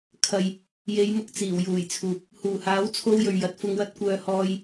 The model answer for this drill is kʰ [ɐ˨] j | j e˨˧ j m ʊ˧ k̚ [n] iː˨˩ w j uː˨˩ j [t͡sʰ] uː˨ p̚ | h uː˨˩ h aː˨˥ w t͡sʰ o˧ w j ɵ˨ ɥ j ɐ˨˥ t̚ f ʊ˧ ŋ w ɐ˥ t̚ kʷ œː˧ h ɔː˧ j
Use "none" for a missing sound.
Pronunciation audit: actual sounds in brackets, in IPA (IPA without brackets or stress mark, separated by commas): ɐ˨, t͡s, t͡sʰ